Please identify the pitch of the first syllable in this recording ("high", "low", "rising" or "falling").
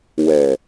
low